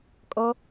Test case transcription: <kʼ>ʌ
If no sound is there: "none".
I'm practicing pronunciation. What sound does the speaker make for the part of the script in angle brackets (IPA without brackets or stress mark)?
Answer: kʼ